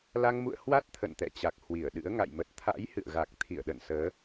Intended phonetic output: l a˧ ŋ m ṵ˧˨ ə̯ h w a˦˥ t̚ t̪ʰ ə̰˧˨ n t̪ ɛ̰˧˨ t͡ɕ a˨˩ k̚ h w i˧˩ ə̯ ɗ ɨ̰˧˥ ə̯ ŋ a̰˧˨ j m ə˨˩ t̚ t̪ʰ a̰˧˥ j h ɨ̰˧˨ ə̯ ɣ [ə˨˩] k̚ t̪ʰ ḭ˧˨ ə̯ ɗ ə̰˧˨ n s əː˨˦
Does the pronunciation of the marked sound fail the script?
yes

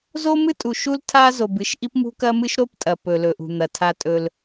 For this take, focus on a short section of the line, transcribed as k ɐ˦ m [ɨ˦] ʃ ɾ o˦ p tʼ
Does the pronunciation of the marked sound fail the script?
no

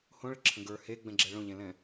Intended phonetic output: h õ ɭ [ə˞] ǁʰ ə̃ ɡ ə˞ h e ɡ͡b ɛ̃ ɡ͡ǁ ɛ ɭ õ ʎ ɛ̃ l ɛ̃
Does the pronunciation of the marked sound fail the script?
yes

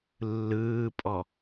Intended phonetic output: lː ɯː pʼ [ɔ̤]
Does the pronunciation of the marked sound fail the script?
yes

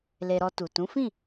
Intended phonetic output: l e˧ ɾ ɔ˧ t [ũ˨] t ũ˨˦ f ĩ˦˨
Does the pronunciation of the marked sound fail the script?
yes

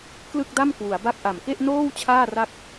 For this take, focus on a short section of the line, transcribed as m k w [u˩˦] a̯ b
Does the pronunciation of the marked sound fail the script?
no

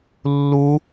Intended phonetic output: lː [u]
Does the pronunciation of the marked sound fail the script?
no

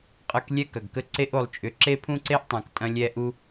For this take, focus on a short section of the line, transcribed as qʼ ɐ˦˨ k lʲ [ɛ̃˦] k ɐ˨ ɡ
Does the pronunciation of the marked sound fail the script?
yes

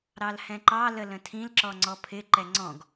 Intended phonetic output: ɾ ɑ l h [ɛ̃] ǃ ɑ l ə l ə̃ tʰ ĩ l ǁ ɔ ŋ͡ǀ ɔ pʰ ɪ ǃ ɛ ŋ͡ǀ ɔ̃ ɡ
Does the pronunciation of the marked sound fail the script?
no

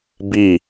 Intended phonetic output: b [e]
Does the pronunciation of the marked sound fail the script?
yes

